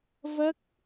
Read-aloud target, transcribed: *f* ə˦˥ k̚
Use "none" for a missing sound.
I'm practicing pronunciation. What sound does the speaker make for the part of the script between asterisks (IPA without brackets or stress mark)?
v